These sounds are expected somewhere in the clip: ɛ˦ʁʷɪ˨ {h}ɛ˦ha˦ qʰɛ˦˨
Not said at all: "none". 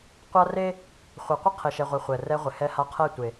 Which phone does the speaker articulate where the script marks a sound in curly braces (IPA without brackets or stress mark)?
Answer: h